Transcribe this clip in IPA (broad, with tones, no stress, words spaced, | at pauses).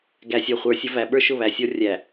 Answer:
ɡæ˨sʲɔ˨χʷə˞˨˦sʲʌ˨˦ væ˨ɓə˞˦ʃʊ˦˨ βæ˨sʲɔ˦ rʲæ˨